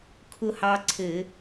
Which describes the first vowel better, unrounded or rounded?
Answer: rounded